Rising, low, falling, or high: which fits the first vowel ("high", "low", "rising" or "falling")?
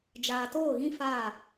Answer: low